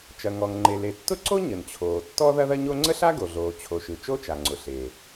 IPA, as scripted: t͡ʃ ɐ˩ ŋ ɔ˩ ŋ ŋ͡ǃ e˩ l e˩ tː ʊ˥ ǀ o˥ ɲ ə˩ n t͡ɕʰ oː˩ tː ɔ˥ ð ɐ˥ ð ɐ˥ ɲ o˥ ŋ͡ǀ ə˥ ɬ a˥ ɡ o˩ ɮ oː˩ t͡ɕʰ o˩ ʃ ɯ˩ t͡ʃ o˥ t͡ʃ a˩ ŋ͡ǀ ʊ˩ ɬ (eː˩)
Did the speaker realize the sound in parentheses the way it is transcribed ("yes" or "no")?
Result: yes